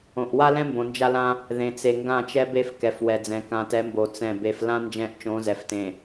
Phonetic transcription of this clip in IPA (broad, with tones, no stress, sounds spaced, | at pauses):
õ˨ ʔ w a˦ l ɛ̃˦ m b õ˨ n d͡ʒ a˦ l ã˦ | ð ẽ˨ t͡s e˨ ŋ ɡ ã˦˨ t͡ʃ ɛ˦ b e˦ f k ɛ˨ f w ɛ˨ d͡z ɛ̃˨ k ã˨ t ɛ˨˦ m b o˨ t͡s ɛ̃˦˨ b e˨ f l ã˦ n d͡ʒ ɛ̃˦ ʔ t͡ʃ õ˨˦ z ɛ˨ f t ẽ˨